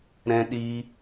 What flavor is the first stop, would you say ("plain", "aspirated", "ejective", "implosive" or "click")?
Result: implosive